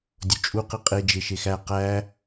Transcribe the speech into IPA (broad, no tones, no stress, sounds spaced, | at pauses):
dʲ o t͡ʃʼ u q i qʼ e d͡ʒ e ʃ e x æ q æ